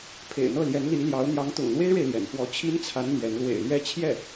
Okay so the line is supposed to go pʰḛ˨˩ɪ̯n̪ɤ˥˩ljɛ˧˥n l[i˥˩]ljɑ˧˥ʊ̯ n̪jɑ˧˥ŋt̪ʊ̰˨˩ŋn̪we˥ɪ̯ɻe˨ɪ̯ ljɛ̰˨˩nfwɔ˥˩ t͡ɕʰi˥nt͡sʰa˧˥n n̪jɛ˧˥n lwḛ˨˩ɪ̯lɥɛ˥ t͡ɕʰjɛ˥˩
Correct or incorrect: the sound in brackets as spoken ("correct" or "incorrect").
incorrect